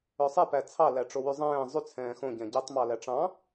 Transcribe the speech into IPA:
œ sˤ e p æ t͡sʰ ɑ l æ ʈ͡ʂ o w y zˤ ɛ̃ː zˤ y t͡sʰ ɛ̃ː x õ ɟ ɛ̃ ɟ e tˤ m ɑ l æ ʈ͡ʂ ɑ̃

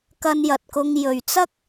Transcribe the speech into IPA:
k ɐ˧ n j ɐ˨ t̚ k ʊ˧ ŋ j ɵ˨ ɥ t͡s ɐ˥ k̚

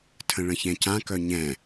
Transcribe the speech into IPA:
tʰ ə̃ ɭ ə̃ ç ɛ̃ c ã k œ ɲ ɛ̃

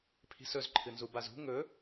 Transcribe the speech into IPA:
pʰ i̤ s ɵ z ǃʰ ɨ n z u b a z ṳ ŋ ɵ

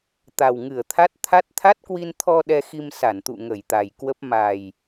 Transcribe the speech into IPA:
t̪ a˨˩ w ŋ ɨ˧˩ ə̯ t̪ʰ a˦˥ t̚ t̪ʰ a˦˥ t̚ t̪ʰ a˦˥ t̚ k w i˧ n t̪ʰ ɔ˧ ɗ ɛ˧ x i˧ m s a˧˩ n t̪ ṵ˧˨ ŋ ə˧˩ j t̪ a˨˩ j k w ə˦˥ p̚ m a˨˩ j

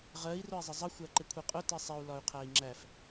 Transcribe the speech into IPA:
ʁ ɜ i̯ r ʊ i̯ zˤ ɪ zˤ ə xʷ æ ǃ ɪ kʷʰ i qʼ ʊ t i sˤ ɪ u̯ l ɒ y̯ qʰ æ i̯ ŋ͡ǁ æ f

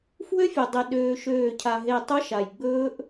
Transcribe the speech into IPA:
f w ø˦ fʲ e˨ dˤ e˨ ɗ øː˧ ʃ øː˦˨ cʰ a˧ ɦ e˦˨ tˤ œ˦ ʃ a˨ j ɡ͡b ɵː˦ ʔ

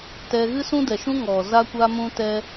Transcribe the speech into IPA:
t ɛ˧ ɣ ɨ˦ s ũ˦ d ɛ˨ ʃ ũ˦ ŋ ɔ˨ z a˦ kʷ a˦ m ũ˦ t ɛ˦

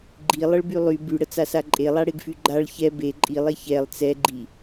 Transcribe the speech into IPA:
ɡ͡ǃ i lˠ ə ɭ b y lˠ y b y ɽ ə t͡s a s a ǃʼ e lˠ a ɽ e ɡ f y ɡ͡ǃ a ɭ ç ɛ b e ǃʼ i lˠ e ç ɛ lˠ t͡s ɛ ɡ͡ǃ i

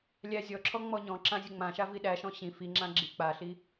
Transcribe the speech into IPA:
lʲ æ zʲ ɔ ǁʰ ɔ ŋ͡m ɔ ɲ ɔ̃ ǁ ã zʲ ə ŋ͡m ã ʃ a v i ɗ æ ʃ ɔ̃ ɕ ĩ f i ŋ͡ǁ ã ɡ͡ǁ i k͡p a ɬ i

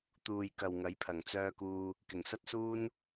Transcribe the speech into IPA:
t̪ uː˨ j k ɐ˨ w ŋ ɐ˨˥ j pʰ ɐ˨˩ ŋ t͡s œː˧ k uː˧ | k ɪ˨˩ ŋ s ɐ˥ t̚ s uː˥ n

